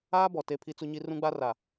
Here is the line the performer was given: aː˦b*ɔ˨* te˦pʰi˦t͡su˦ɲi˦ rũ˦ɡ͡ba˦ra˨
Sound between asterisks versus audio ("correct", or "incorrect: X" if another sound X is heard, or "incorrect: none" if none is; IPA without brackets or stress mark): correct